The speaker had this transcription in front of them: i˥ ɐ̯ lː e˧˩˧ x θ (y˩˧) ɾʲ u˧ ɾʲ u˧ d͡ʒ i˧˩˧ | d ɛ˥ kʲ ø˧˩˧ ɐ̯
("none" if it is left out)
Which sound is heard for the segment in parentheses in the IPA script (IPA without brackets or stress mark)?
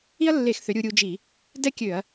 ø˩˧